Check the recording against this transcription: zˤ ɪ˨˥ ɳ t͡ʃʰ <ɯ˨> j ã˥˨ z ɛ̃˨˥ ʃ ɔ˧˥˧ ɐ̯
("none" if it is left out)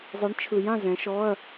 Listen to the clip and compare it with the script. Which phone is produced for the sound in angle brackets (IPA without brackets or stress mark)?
ɯ˨